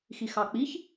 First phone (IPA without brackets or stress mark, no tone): x